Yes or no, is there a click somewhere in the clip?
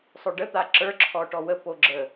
yes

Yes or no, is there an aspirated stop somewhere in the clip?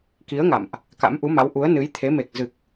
yes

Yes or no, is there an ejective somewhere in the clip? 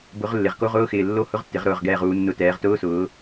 no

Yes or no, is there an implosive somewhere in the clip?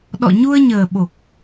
yes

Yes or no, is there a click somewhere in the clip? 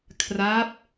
no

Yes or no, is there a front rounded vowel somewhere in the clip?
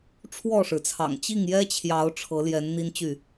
yes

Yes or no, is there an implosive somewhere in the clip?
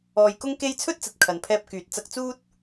no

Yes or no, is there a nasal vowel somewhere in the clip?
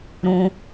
yes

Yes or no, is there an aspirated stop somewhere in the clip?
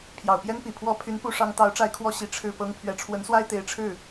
yes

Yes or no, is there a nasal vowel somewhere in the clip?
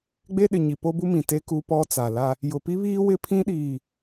yes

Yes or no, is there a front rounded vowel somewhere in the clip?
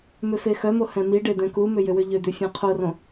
yes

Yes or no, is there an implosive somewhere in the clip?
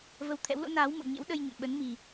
yes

